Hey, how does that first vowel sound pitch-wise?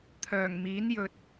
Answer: low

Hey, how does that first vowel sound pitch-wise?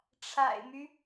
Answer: low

